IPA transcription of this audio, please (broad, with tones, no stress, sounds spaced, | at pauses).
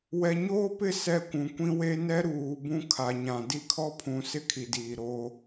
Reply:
w ɛ˨ ɲ oː˦ p ɪ˦˨ s ɛ˦˨ kʷ ũ˨ kʷ ĩ˦ w e˦ n ɛ˦ ɾ uː˨ b ũ˦ kʰ a˨ ɲ ã˨ d i˦ kʰ ɔ˦ pʰ ũ˨ s ɪ˦ kʰ i˨ d iː˨ ɾ oː˦